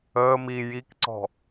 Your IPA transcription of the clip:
əː m i j i k ǀ ɔ̤

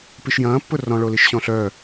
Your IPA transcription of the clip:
p i ʃ j ɐ̃ː pː ʊ r ɔ̃ ɭ o l i ʃ ɕ ɔ̃ ɬ œ

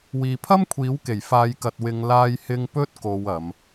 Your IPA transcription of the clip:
w iː˨ pʰ ɐ˥ m kʷʰ iː˨˥ w k e˨˩ j f aː˨˧ j k ɐ˨ t̚ w ɪ˨˧ ŋ l aː˧ j h ɪ˧ ŋ p ɵ˥ t̚ k o˨˧ w ɐ˨˧ m

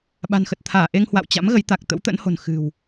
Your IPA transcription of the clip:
ɓ a̤˨˩ n x ə˨˩ t̚ t̪ʰ aː˧˩ ʔ e˧ ŋ h w a̰˧˨ w t͡ɕ a̰˧˥ m ɣ ə˨˦ j t̪ a˨˩ k̚ t̪ ə̰˧˥ w t̪ ə̰˧˥ n h o̤˨˩ n x ɨ̤˨˩ w

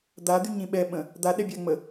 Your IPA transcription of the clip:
d̪ a d̪ y ɲ ĩ ɓ ɛ ɓ ə̃ | d̪ a ɗ ɛ bʲ a ŋ͡m ə

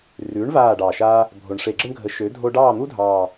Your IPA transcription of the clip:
r ʉ˨˥ ɳ v aː˦˨ ɖ ɑ˨˩ ʃ a˦ | bʱ o˨˩ ɳ ʂ e˧˩˧ ɡ͡ǁ ə˦ ɳ ɡʱ ə˨˥ ʃ ø˨˥ dʱ o˦ ɖ ɑː˦˨ n̪ u˦ dʱ ɑː˨˩

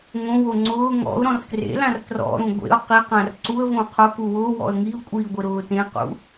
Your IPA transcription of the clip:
ŋ õ w o ŋ͡ǀ ʊː ŋ ɔ̰ ʊ̯ ɾ ɔ̃ r k r ḛ l ã r t r ɔ̰ ɾ ũ ɡʷ ḛ ʊ̯ q i q ã r ǀ u ə̯ v õ qʰ ʊ k u w ʊː w ɔ̰ ə̯ ŋ i ʊ̯ kʷʼ iː ɡʷ ɪ ɾ ʊː t ẽ q ṵ

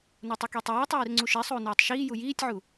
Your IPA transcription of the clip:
n u tˤ i k i tˤ oː tˤ iː r ŋ͡ǀ u ʃ i sˤ uː n uː tˤ ʃ iː j u j iː tʲ ʕ u

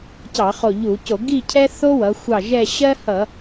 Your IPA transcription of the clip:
c ɑ˧˩˧ χ o˧˩ ʎ u˧˩˧ c o˧˩˧ ɡ i˥˧ cʰ ɛ˥ θ o˥ w ʌ˩˧ xʷ ɑ˧˩ ʒ ɛ˥˧ ɕ ɜ˥ h ʌ˧˩˧

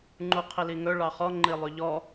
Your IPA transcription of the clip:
ŋ͡ǃ u qʰ i l i ŋ ɵ ɭ ɑ χ ɔ ŋ͡ǃ i lˠ y ʎ ɔ

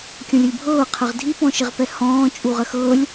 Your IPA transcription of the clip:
kʲ ɔ̃ lʲ ɤ lʲ bʱ ɤː qʰ ə ʁ dʱ i p ɔ̃ ʃ ɪ ʁ p ɛ h ɔ̃ː t͡ʃʼ u ʁ ə x ɤː lʲ

